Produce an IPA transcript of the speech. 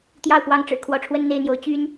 t̪ j ɑ˥˨ ʊ̯ p w ɑ˦ ŋ ʈ͡ʂ ɻ̩˨˩ kʰ w ɔ˨˦ ʈ͡ʂʰ w ə˦ n n̪ e˥˨ ɪ̯ n̪ j o˨˦ ʊ̯ t͡ɕ y˦ n

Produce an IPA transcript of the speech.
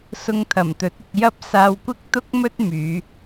s ʊ˧ ŋ t̪ʰ ɐ˨˩ m t̪ ɵ˨˥ t̚ ɪ˧ k̚ j ɐ˥ p̚ s aː˧ w kʷ ɪ˥ k̚ t̪ ʊ˥ k̚ m ɵ˥ t̚ m yː˨˧

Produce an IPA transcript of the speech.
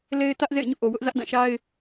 l e˦ ɪ̯ t ä˦ ʔ z ḛ˦˨ ɪ̯ ɲ ṵ˦˨ ʔ o˨ w ʊ˦ ʔ z ä˦ ʔ d ã˦˨ ʃ a˦ ɪ̯

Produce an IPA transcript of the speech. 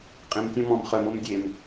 qʼ ẽ m tʲ ɔ̃ m ɔ̃ m χ œ m o m dʲ e m

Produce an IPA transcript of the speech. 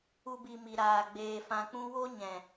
u˦ b i˧ m i˨ ɾ aː˨ ɡ͡b eː˨ f ã˨ k͡p ũ˧ w o˦ ɲ ɛ̃˨

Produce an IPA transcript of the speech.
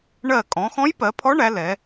ɳ ɜ˧˩ kʼ ɔ̃˩˧ x ɔ̃˧˥ j p ɜ˩˧ pʰ ɔ˧˥ ɳ æ˩˧ l ɛ˩˧

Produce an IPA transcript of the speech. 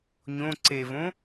ɲ õ ǀ e v õ

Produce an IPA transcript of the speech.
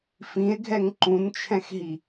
f ĩ e̯ ɡʱ ɛ ŋ ǃ ũ n t͡ʃʰ ɛ̃ x ɦ i

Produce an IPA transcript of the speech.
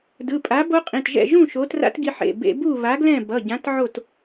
d ɯ˩˧˩ pʼ a˨˥ b o˦˥ qʼ ĩ˩˧˩ t ʒ ɛ̰˥˨ ʒ ũ˥˨ ʃ o˨˥ t r a̰˦˥ t ɡ i˧ ħ ḛ˩˧˩ b ḛ˧ b u˥˨ β a˨˥ ɡ l ɛ̃˥˨ b ʌ˩˧˩ ɟ ã˨˥ t ʕ o˥˨ t

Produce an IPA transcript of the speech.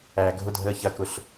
æː ɡʱ ʊ dʱ əː ç ɐ k ʊ ɬ

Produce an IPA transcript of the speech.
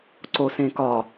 ǀ o s ẽ k ɒ

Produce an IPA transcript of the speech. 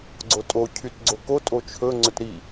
ɡ͡ǀ o tʼ o cʰ y t ɡ͡ǀ o k o tʼ o t͡ʃʰ ɵ ŋ͡ǀ ɵ t ɾ i

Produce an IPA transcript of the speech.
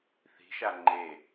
θ i̤ ʃ a ŋ͡ǃ e

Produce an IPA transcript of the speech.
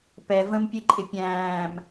p ɛ v ə̃ m pʲ e ǃʼ ɪ pʲ æ̃ː m

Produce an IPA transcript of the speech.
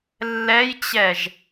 lː ɛ j t͡ɕ ɛ ʒ

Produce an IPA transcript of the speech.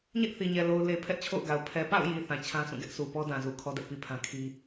ɲ ɛ˦ ʔ θ i˨ ɲ ɛ˨ l o˨ ʊ̯ l e˨ pʰ ɛ˦ ʔ t͡ɕʰ o̰˦˨ ʊ̯ ɡ a˨ ʊ̯ pʰ ɛ˨ p a̰˦˨ ʊ̯ j i˨ θ ã˨ t͡ɕʰ ã˦ s ũ˦˨ ɡ ɛ˦ ʔ s u˨ p ɔ˦ d ã˨ z u˨ kʰ ɔ˦ d ɛ˦ ʔ p i˨ pʰ ã˦ kʰ i˦

